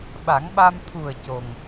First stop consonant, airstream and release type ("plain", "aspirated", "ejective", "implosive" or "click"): implosive